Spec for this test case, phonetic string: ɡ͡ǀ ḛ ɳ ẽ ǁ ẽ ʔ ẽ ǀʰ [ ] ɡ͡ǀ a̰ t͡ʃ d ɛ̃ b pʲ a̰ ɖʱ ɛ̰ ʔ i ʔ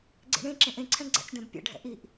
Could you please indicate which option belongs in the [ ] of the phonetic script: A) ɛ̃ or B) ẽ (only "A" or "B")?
A